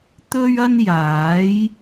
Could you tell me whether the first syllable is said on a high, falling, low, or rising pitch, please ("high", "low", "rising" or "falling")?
high